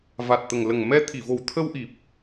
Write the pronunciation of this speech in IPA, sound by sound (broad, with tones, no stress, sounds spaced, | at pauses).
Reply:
v a˨˩ t̚ t̪ ə˨˩ ŋ l ə˨˩ ŋ m ɛ˧ t̪ʰ i˨˩˨ v o˨˩ w t̪ʰ ə˧ w ʔ i˨˩ p̚